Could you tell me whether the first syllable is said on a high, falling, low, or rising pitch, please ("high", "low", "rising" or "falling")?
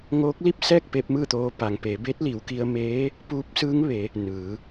rising